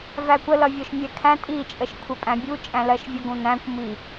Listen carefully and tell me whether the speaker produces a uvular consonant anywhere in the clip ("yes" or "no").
no